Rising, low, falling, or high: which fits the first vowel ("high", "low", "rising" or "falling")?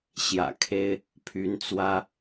low